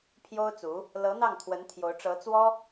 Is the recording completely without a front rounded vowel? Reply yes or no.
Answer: yes